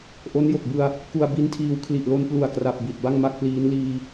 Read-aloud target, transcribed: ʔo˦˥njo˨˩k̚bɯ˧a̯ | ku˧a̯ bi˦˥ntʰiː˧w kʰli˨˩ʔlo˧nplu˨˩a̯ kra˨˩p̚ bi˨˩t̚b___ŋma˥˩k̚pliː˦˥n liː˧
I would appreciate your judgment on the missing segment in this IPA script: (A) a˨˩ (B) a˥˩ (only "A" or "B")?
B